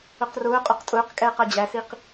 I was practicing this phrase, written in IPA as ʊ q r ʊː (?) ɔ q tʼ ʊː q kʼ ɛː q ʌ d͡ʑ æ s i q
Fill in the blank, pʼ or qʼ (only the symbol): qʼ